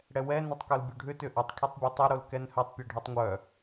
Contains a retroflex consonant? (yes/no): yes